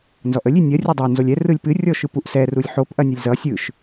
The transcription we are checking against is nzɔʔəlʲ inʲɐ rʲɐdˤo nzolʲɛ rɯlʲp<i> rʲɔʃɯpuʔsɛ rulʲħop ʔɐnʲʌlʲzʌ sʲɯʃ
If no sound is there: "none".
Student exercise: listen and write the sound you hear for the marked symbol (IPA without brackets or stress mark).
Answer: ɨ